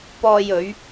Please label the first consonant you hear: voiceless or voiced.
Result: voiceless